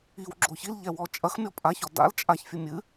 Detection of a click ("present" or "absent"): present